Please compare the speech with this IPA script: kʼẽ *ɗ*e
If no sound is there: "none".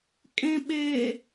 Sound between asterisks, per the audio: ɓ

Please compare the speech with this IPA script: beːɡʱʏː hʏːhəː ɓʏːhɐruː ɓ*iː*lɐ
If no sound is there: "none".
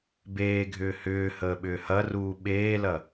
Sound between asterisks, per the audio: eː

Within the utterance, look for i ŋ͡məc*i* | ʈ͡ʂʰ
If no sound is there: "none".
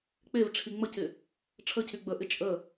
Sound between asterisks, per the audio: ɪ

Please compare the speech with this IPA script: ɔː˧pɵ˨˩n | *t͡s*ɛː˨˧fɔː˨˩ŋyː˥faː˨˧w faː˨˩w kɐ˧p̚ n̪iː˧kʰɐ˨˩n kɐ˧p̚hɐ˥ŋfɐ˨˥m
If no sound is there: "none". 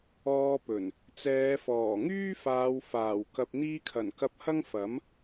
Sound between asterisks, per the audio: t͡s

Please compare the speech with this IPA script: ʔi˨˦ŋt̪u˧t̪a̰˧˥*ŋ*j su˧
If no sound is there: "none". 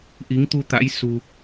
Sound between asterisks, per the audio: none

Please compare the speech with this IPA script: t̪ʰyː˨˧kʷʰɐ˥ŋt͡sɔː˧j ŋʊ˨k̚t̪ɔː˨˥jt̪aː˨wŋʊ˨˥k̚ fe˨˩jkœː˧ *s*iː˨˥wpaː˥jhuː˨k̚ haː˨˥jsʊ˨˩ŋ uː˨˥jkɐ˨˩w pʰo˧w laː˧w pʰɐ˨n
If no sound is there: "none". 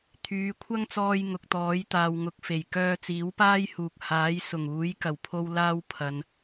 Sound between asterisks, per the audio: t͡s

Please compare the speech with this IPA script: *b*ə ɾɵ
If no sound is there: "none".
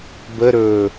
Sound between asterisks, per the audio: b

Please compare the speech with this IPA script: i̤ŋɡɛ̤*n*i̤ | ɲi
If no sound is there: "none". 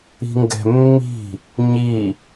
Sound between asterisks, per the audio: mː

